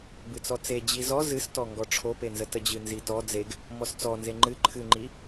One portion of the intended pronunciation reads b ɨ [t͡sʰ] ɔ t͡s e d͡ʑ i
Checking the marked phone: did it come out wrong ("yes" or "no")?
yes